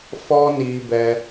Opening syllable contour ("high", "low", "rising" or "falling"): high